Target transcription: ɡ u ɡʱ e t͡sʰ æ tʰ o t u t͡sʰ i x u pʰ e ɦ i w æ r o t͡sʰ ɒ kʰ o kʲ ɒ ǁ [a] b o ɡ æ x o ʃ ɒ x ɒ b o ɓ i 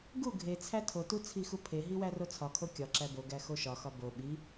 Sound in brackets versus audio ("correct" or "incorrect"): incorrect